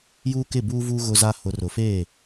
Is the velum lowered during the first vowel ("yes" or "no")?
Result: no